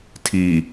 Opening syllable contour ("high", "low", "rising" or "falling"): low